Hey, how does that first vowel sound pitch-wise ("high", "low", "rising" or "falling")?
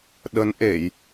rising